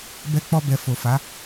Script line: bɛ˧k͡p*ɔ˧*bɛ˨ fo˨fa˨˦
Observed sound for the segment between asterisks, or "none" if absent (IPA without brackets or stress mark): ɔ˧